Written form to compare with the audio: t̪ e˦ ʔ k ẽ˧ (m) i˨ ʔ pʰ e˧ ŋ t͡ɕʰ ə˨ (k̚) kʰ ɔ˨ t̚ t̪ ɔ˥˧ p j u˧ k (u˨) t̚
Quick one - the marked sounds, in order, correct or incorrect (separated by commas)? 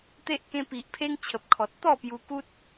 incorrect, incorrect, incorrect